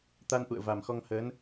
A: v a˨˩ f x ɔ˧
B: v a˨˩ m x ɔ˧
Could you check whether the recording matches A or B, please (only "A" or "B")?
B